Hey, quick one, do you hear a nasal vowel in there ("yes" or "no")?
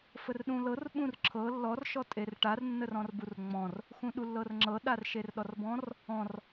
yes